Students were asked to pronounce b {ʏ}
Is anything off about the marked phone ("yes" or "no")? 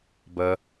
yes